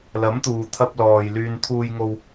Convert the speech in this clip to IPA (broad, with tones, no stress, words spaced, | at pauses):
lɐ˨˥mt̪uː˨t̪ʰɐ˧p̚ lɔː˨j lyː˨nt̪ʰuː˧jŋo˧w